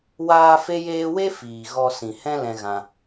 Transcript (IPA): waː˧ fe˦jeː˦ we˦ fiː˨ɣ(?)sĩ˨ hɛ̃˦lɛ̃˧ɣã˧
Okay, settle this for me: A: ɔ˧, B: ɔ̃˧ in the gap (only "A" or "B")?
A